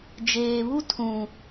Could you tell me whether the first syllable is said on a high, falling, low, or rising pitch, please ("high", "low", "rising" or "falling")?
low